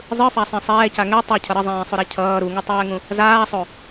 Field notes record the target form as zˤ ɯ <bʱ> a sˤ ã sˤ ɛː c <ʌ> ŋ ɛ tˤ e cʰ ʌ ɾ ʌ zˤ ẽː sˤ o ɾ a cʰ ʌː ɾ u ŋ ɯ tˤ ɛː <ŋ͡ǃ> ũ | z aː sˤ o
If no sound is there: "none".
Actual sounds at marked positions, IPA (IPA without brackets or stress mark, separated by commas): f, a, ŋ